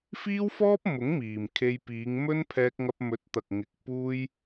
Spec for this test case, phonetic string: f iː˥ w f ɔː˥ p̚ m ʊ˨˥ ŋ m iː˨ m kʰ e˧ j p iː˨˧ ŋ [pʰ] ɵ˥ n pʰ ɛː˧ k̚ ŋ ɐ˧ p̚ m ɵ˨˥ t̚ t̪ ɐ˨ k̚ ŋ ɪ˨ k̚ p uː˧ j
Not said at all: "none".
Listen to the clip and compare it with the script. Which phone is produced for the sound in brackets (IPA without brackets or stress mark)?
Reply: m